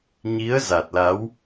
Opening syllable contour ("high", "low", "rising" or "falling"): rising